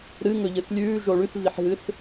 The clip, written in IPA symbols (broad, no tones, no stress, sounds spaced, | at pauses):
ɾ ɨ ŋ ɵ ʎ ɨ s lʲ ʉː ʒ o ɭ ʉ s v i ħ ɦ ɨ s